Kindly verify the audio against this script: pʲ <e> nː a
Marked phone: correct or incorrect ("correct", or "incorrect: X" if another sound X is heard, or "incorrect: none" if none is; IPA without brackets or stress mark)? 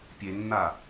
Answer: correct